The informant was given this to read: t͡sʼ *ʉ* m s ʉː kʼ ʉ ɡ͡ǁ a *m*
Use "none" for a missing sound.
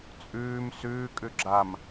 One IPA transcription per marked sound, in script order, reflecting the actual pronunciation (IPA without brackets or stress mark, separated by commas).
ʉː, m